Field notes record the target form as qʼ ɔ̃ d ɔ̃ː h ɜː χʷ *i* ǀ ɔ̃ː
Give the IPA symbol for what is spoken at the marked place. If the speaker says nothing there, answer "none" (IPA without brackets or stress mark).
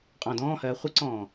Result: ɨ